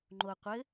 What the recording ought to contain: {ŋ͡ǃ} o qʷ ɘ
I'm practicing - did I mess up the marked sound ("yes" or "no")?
no